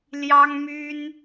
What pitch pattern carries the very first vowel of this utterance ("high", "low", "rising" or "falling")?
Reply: high